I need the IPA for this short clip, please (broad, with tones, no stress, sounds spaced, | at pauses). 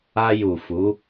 a˧ j u˨ f u˨˦